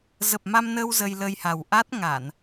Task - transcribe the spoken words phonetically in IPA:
zə˨˩p̚ma˧mnəː˧w zə˧jlə˧jha˨˩w ʔa˦˥t̚ŋa˧˩˨n

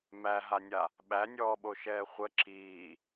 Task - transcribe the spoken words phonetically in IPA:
mæɦanʲa | ɓænʲɔːɓoʃɛː χʷə ǁiː

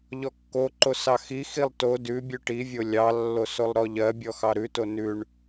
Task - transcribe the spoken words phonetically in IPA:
ʎɔkːoǃo sɑxixilˠ to dʉ bʲʉʈivʲo lʲɑlːo solˠɾɔʎɜbʲɔ xɑɾʉto nʉɳ

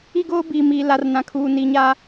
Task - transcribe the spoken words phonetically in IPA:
i˦ɡoː˦biː˨miː˨ la˨rnã˨kʰuː˨ni˨ ɲa˦

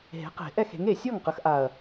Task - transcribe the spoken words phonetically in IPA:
ɦe̤˩˥qe̤˨˩˦ ʔɛ˥˩xe̤˩˥ŋe˨˩ sʲɔ˥˩ŋqə˩˥xʔa˨˩ɐ̯

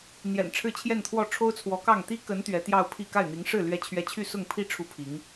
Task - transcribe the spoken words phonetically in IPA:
n̪jɛ̰˨˩n ʈ͡ʂʰɻ̩˥˧t͡ɕʰjɛ˥˧nt̪ʰwɔ˥˩ ʈ͡ʂʰo˥ʊ̯t͡sʰwɔ˧˥kɑ˥˩ŋ t̪i˥kə˧˥n t̪ɥɛ˧˥t̪jɑ˥˧ʊ̯ pʰi˥˧ ka˥˩ɪ̯n̪i˧˥ŋʂɻ̩˥˩ lɥɛ˥t͡ɕʰɥɛ˥ t͡ɕʰy˥˧sʊ˥˧ŋpʰi˥˧ ʈ͡ʂʰu˥˩pʰi˧˥ŋ

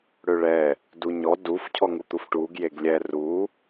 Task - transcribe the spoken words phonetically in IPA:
ɽøɭɛː | duɲɔ duf cʰɔŋut̪ufʈuːɡ jeɡlʲɛ ruː

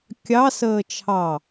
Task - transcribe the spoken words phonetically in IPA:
kʲɑ səːt͡ʃʰɑ

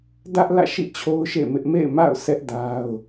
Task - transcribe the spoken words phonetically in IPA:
dä˦ʔlä̰˦˨ʃḭ˦˨ t͡ɕʰo˦ʊ̯ʃḛ˦˨mɪ˦ʔ mḛ˦˨ɪ̯ma̰˦˨ʊ̯ sʰɛ˦ʔ da˦ʊ̯

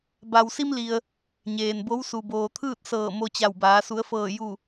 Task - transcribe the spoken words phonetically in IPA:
ba˩wsi˧m li˩ə̯ | ɲeː˩nbo˧˥w su˩boː˩t̪ʰɯː˥˨t̚ sɤː˧˩ mo˧t͡ɕa˧˩wbaː˩˧ su˩˧ə̯fɤː˧˩ ju˧˩

